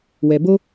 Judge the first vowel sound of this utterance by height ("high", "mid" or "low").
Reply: mid